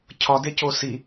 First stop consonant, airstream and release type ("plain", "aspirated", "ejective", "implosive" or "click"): aspirated